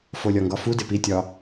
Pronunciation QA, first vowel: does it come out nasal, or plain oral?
oral